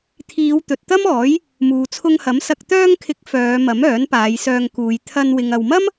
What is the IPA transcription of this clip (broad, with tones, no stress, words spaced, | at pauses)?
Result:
t̪ʰiː˨˧w t̪ɵ˨t̚t̪ɐ˥mɔː˨˥j | muː˨t͡sʰʊ˧ŋhɐ˨˥m sɐ˨k̚t̪œː˧ŋkʰɪ˨˥k̚ fœː˨˧mɐ˨˥m œː˨˥npaː˨˧jsœː˧ŋkuː˨˧j t̪ʰɐ˧n wɪ˨ŋɐ˨wmɐ˥m